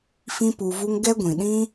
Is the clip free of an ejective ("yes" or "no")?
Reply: yes